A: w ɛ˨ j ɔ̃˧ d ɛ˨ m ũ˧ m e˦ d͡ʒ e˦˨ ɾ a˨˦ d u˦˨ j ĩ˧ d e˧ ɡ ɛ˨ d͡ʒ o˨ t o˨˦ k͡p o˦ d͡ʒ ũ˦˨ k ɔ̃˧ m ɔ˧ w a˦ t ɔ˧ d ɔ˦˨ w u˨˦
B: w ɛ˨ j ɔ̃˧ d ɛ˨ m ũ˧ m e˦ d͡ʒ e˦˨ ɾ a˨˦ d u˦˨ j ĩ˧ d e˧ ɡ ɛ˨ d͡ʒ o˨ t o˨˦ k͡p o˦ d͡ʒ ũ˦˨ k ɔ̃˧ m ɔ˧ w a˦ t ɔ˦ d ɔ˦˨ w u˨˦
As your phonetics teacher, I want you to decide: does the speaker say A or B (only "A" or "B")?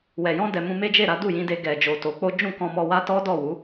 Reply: B